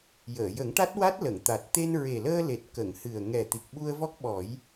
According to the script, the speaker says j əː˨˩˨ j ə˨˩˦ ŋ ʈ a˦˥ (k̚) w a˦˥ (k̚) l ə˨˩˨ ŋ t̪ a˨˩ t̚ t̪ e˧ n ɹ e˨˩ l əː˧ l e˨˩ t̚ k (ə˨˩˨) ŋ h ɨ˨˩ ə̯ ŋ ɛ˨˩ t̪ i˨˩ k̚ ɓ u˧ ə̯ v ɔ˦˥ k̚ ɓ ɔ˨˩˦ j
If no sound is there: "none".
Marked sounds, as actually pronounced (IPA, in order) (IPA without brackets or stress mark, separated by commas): t̚, t̚, ə˨˩˨